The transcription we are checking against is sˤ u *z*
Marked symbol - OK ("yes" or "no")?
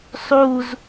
yes